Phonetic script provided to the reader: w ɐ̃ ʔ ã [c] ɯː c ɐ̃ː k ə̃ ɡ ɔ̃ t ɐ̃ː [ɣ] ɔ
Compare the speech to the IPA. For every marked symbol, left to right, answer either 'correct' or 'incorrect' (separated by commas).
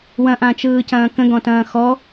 incorrect, incorrect